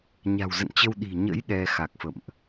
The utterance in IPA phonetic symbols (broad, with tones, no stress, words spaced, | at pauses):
ɲa̤˨˩wzə̰˧˨nt͡ɕə˧w ɗi̤˨˩ɲə̰˧˥j ɗɛ˧ xa˨˩k̚fə̰˧˨mʔ